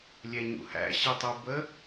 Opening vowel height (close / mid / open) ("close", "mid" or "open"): mid